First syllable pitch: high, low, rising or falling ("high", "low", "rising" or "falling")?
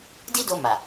high